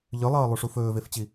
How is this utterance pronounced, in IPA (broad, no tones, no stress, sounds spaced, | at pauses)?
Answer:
ʎ ʏ lˠ ʌː lˠ u ʂ u f ɵː v e f t͡ɕ i